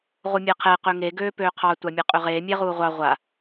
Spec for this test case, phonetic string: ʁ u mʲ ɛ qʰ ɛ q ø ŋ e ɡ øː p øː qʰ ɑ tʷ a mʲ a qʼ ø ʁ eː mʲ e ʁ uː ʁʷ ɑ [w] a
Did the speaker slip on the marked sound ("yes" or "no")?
yes